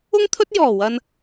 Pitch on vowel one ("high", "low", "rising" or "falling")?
high